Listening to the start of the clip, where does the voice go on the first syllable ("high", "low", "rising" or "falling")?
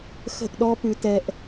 falling